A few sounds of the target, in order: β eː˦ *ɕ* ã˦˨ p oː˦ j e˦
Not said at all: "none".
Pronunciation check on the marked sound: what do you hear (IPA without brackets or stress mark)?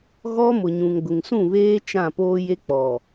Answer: t͡ʃ